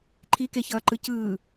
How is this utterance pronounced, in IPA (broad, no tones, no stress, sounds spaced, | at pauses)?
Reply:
ǃʰ i k e ç ʌː ǃ ɯ c ɯː